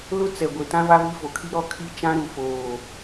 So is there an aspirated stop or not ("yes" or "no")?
yes